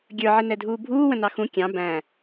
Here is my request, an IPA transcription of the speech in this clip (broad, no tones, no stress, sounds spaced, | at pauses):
ɡʲ ə˞ ʕ ɪ n ɛ dʱ uː bʱ uː w ə̃ n ɑ x ũ kʲ ɑ̃ b æ̃